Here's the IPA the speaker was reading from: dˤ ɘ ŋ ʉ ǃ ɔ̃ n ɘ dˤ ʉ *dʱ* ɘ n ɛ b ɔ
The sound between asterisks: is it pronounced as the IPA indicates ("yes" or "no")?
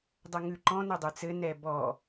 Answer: no